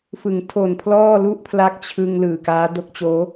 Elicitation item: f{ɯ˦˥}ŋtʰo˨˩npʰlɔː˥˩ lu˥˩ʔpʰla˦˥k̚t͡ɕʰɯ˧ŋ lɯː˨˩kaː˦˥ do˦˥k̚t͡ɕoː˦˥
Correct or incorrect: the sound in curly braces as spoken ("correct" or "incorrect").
incorrect